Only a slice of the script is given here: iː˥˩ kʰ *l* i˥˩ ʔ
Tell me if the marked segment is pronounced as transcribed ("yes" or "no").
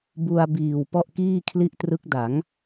yes